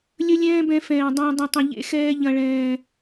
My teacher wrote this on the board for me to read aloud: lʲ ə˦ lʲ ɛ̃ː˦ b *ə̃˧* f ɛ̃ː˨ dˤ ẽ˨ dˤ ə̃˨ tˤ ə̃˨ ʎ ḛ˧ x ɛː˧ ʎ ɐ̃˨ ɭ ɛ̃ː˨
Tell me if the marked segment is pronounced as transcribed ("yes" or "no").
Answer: no